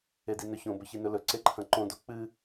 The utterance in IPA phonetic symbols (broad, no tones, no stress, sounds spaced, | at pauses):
e d i n ɵ ç õ b ɵ ç i n ɵ l ɵ ǀ e ǃʰ ɐ̃ ǃ õ d o k͡p ɨ